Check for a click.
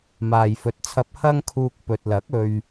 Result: absent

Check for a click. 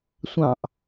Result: absent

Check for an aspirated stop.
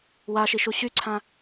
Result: present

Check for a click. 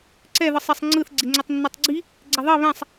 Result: present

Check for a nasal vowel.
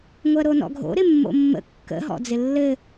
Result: absent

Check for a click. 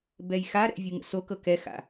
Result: absent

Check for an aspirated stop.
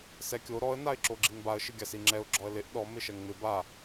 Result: absent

